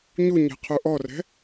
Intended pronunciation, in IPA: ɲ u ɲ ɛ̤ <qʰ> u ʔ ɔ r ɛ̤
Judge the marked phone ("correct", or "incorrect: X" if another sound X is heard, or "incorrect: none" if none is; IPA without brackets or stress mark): correct